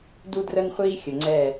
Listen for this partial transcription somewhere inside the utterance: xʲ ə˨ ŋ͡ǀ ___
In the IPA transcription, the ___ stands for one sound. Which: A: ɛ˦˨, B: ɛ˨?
A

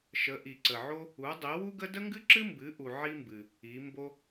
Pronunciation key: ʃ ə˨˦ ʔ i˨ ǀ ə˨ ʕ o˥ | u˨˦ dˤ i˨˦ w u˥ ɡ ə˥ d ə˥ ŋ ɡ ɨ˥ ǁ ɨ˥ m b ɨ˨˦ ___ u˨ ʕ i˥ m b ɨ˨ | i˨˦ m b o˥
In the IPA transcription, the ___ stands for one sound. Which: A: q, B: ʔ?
B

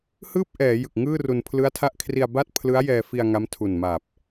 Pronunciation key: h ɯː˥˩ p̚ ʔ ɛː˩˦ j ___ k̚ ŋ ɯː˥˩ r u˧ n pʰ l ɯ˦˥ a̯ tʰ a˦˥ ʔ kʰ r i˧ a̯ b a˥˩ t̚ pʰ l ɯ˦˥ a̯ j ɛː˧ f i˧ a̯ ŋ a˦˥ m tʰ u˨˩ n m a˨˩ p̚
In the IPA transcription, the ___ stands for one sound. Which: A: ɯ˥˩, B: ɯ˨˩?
B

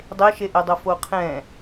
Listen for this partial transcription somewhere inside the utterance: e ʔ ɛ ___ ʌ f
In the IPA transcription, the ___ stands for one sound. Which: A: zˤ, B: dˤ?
B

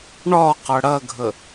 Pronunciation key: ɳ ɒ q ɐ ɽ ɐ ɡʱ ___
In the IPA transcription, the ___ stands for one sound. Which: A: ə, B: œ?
A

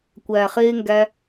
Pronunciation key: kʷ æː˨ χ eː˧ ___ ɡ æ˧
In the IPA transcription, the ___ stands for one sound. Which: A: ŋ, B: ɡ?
A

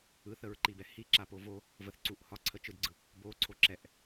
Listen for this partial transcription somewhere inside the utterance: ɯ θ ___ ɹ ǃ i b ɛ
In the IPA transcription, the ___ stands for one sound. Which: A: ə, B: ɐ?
A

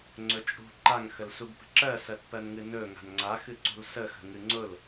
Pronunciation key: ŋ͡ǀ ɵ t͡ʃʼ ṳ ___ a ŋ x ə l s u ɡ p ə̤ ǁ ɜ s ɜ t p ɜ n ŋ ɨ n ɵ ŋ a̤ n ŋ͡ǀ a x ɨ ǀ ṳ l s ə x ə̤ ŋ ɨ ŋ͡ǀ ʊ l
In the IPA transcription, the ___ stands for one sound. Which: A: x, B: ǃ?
B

